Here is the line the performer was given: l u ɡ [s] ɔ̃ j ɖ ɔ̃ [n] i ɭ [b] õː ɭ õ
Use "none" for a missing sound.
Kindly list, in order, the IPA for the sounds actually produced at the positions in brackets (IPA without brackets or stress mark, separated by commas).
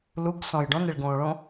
s, n, ɡ